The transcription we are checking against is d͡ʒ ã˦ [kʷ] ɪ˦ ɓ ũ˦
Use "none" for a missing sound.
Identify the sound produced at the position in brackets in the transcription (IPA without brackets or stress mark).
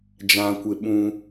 kʷ